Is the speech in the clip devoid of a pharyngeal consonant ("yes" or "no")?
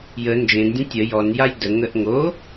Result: yes